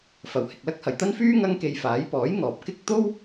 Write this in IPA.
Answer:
f ɐ˨ w h ɪ˨ k̚ l ɐ˥ k̚ h ɐ˨ j t̪ ɐ˥ n f yː˥ ŋ ɐ˥ ŋ k e˧ j f aː˨˥ j p ɔː˨˥ j ŋ ɔː˨ p̚ k ɪ˥ k̚ t̪ o˥ w

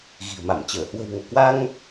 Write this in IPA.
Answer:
ɣ i̤˨˩ ə̯ m a˧˩ m t͡ɕ əː˧˩ h w ə̤˨˩ w ŋ o˧˩ k w a˧ ŋ

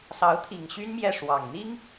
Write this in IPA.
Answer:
s ɑ˧˥ ʊ̯ t̪ʰ i˨˩ ŋ ɕ y˥ n m j ɛ˥˩ ʂ w ɑ˨˩ ŋ n̪ i˥ ŋ

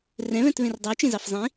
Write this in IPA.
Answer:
r ɛ̃ β ɛ̃ t β ẽ r dˤ ɛ w t͡ʃ ẽ z ɑ f zˤ ĩ

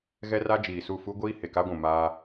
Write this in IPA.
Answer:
ɣ ɛ˦ r a˦ d͡ʒ iː˨ s u˦˨ f u˦ ɡʷ iː˦ h e˨ k a˦ ɡʷ ũ˨ m aː˦

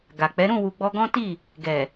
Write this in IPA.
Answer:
ɡ a˨ k͡p ɛ˨˦ ɾ ũ˦˨ w u˨ ɡ͡b ɔ˧ ɡ ɔ̃˦ t i˦˨ | ɡ ɛ˨

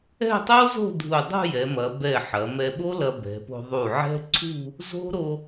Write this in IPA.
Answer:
ɛ̤˥˧ tˤ o˥ z o̤˥˧ dʱ u˧˩ dˤ ṳ˥˧ j ɛ˩˧ m ɐ˩˧ b ɛ˧˩ ħ ɐ˩˧ m ɛ˧ ɓ o˥ l ɐ˧ b ɛ̤˩˧ p o̤˧ ðˤ u˧˩ ʕ ɛ̤˥ ǀʰ ṳ˥˧ | z o̤˥ ɾ o˧

